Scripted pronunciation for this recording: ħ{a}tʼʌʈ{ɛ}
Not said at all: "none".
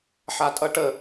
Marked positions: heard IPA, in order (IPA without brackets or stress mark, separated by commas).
a, ə